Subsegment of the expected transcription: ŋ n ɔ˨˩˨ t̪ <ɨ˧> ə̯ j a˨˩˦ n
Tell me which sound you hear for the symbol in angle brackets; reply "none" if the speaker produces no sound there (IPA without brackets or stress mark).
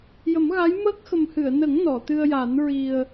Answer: ɨ˧